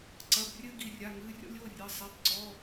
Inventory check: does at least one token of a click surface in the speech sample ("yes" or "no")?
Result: yes